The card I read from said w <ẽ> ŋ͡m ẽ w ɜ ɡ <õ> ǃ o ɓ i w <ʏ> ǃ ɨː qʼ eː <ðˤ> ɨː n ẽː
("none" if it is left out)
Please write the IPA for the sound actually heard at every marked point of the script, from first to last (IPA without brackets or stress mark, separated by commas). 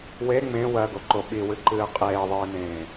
e, o, ɨ, ðˤ